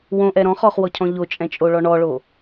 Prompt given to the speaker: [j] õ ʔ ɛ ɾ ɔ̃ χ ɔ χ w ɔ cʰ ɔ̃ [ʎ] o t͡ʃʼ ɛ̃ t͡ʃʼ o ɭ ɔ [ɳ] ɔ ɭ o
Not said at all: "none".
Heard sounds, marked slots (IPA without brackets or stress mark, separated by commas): w, ʎ, ɳ